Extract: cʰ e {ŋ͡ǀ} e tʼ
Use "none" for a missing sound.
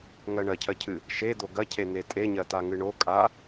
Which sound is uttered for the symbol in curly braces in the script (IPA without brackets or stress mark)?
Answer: n̪